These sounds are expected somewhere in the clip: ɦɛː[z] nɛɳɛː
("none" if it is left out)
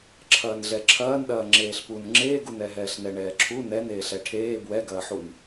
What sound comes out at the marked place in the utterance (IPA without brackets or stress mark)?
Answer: ɬ